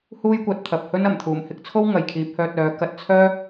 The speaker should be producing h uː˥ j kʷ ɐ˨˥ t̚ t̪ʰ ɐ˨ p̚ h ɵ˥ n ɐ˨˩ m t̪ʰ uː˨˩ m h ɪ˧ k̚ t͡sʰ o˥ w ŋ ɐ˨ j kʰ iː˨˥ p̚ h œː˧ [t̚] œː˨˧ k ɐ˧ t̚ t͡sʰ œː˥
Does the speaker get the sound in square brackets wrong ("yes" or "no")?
no